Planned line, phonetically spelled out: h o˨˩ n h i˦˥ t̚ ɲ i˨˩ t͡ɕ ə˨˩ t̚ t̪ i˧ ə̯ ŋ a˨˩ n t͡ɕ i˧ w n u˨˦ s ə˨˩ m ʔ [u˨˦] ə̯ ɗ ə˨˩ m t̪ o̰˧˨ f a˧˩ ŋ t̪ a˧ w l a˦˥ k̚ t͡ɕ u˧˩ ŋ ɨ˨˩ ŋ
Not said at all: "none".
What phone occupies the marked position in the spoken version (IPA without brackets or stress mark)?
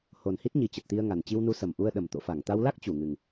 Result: u˧